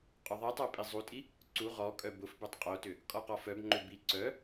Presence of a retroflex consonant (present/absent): absent